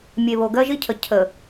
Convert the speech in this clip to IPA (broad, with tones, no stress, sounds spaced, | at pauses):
mʲ e˨ β o˨ ɡ ɜ˦ ʒ i˦ cʰ ə˨ cʰ ə˨